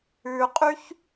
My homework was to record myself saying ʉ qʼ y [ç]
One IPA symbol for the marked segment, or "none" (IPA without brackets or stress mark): ç